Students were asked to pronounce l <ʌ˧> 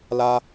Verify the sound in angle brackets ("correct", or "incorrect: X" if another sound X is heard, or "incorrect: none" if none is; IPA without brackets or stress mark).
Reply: incorrect: a˧